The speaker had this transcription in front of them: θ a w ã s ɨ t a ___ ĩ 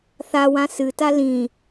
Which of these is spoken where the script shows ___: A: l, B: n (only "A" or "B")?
A